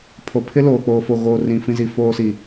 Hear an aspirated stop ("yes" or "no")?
yes